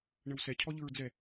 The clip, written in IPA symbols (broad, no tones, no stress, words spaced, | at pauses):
ɳəwsɛ cʰɔʎɯɹd͡zɛ